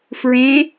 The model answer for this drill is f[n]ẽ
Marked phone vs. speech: incorrect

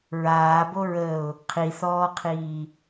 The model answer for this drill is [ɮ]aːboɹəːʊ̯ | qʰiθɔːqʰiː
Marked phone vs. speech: incorrect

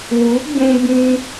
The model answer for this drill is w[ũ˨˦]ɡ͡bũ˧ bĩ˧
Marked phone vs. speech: incorrect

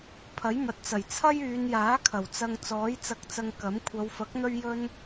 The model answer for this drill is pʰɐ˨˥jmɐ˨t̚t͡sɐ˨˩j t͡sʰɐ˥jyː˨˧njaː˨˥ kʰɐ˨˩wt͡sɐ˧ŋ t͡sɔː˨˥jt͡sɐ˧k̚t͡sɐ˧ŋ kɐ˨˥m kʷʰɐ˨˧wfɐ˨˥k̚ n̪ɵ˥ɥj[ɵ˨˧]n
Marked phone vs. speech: incorrect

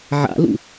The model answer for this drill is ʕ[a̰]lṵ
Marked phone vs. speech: correct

